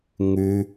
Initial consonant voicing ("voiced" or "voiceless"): voiced